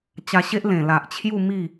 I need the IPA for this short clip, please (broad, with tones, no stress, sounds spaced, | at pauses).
t͡ɕ a˧ ɕ e˦ ʔ l ẽ˨˩ l a˨ ʔ t͡ɕʰ j u˥˧ m i˥˧